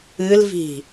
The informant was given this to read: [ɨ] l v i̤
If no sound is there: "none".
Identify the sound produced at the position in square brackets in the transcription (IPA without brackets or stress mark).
ɨ